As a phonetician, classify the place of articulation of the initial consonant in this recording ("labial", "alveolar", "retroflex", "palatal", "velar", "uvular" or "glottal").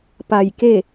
labial